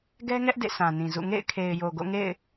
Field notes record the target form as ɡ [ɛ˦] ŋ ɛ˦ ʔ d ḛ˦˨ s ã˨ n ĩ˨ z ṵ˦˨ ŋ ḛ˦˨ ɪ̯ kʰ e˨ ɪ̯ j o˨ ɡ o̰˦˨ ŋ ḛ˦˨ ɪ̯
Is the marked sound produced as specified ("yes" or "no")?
yes